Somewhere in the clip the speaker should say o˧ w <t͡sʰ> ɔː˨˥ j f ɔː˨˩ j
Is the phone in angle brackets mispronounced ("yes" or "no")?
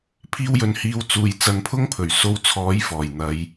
no